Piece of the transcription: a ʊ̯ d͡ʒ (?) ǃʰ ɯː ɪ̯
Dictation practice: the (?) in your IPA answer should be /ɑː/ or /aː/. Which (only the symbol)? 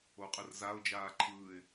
aː